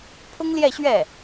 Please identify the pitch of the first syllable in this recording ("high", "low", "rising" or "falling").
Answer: high